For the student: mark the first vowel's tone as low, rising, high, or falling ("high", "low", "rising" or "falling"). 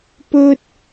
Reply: high